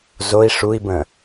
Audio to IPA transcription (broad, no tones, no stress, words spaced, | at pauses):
zoi̯ ʂui̯bə̃